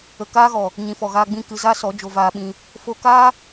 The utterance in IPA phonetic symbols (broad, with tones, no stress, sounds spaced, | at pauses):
ə˨ k aː˦ ɣ ɔ˨ | ɲ ĩ˨ f ɔ˨ ɣ aː˧ ɡ͡b ĩ˦˨ k ɨ˧ z a˦ s ɔ˨˦ d͡ʒ o˧ v aː˧ ɓ ĩ˧ | f o˧ k aː˦